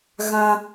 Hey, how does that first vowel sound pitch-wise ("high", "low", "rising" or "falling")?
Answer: high